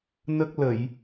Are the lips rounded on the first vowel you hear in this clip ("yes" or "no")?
no